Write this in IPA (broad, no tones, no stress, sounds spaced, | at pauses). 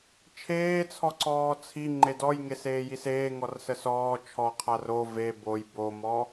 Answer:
t͡ʃʰ eː t͡sʰ ɔ ǀ ɔː t͡sʰ i ŋ͡ǃ e d ɔ j ŋ e s eː j i s eː ŋ ɔ r s ə s ɔː t͡ʃʰ ɔ qʰ a r o v e b o j b o m ɔ